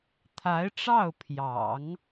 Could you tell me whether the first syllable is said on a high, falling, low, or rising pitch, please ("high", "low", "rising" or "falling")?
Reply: rising